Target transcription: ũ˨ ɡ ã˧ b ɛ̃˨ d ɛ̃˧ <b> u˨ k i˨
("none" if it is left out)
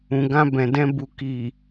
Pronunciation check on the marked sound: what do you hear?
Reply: b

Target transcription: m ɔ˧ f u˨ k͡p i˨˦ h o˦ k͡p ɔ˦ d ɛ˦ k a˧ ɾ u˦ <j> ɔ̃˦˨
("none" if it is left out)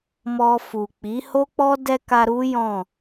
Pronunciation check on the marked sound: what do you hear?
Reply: j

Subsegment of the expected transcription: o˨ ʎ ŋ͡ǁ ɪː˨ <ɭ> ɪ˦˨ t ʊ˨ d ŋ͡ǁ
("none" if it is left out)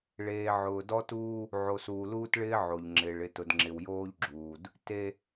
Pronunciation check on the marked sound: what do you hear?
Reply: ɭ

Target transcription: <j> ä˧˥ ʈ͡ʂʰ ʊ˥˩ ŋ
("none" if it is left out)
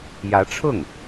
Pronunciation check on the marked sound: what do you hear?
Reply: j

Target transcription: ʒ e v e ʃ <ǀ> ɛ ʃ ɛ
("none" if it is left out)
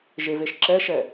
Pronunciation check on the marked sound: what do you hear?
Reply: ǁ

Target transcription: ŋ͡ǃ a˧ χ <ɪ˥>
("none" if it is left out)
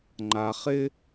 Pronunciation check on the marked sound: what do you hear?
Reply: ɪ˥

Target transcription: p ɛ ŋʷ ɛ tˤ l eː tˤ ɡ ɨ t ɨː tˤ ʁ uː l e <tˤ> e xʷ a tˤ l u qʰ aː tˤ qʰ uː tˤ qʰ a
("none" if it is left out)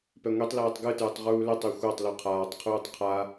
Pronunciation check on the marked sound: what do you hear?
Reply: tˤ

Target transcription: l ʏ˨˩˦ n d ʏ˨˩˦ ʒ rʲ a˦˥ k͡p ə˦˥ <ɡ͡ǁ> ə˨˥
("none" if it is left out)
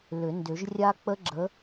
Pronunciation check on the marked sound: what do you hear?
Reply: ɡ͡ǁ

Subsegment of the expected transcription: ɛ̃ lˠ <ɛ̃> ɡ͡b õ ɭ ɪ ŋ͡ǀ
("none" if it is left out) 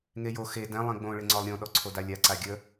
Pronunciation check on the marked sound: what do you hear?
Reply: ẽ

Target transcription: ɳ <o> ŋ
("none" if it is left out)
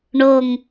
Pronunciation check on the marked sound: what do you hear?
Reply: o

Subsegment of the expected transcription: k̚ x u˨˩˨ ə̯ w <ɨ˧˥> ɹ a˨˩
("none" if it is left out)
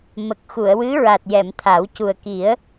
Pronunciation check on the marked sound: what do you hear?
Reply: ɨ˧˥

